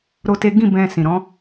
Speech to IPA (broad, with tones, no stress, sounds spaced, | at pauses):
ɾ o˦ t e˦ ɡ ĩ˦˨ b ɛ̃˧ s ĩ˨ ɾ ɔ̃˨˦